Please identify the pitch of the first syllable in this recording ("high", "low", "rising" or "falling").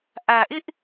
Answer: low